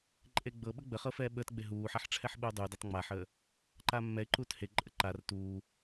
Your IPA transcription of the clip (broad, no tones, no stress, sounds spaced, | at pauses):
ǃʼ e ɡ͡b ɤ ɓ ə ɡ͡b ə χ ɤ f ɛː ɓ əː t ɡ͡b e ɦ uː ħ a ħ ʈ͡ʂʰ ɛ ħ ɓ uː dˤ u d a tˤ ŋ͡m a ħ əː | ǃ aː mː ɛ ɪ̯ ǃ uː t h e ǃʼ ə ǃ a r t uː